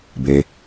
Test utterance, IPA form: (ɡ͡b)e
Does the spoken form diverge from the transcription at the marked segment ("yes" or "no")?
yes